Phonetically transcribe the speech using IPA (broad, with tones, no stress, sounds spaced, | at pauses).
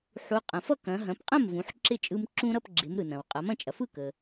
ħ u˩˧ qʼ ɐ̃˩ f ʌ˥˩ k ɐ̃˩˧ ɦ ɐ̃˩˧ p qʼ ɐ̃˥˩ m v ũ˩˧ ħ ǁ ɪ˥˩ t͡ʃʼ ɯ˧ m ǁ ũ˧ ɾ ʌ˥˩ p ɡ͡ǁ ɪ˩˧ m ɾ ɯ˩ n ɐ̃˩ w qʼ ʌ˩˧ m ɐ̃˥˩ t͡ʃʼ ɐ˩˧ f ɯ˥˩ k ə˩